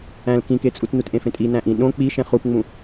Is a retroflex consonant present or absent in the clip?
absent